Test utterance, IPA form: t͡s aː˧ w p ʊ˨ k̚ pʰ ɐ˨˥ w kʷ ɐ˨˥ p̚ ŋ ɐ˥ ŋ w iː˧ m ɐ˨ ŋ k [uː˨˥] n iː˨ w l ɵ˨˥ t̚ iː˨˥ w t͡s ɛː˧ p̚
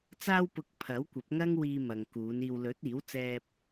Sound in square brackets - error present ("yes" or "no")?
yes